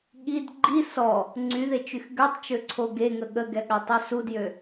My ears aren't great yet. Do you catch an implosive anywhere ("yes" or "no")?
yes